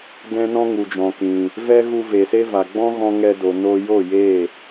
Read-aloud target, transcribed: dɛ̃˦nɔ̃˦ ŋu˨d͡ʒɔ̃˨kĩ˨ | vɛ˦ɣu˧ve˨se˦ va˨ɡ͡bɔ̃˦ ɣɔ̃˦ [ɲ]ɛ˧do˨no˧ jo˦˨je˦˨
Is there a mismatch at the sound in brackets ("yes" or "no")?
yes